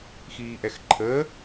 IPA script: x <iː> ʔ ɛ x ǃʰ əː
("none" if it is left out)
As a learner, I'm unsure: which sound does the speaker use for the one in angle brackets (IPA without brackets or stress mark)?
iː